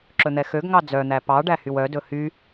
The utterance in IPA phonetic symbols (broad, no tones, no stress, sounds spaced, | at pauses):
ǁ ɵ n̪ ɛ x ø ɡ ŋ ɑ d͡z œ n̪ æ p ɑ ɖ æ h y w œ d ɵ h y